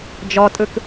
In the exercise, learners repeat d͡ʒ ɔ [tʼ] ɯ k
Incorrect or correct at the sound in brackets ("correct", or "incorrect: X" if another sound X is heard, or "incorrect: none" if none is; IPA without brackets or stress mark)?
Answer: correct